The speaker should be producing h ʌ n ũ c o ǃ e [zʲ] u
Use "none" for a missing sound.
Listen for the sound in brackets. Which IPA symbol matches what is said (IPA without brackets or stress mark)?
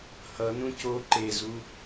z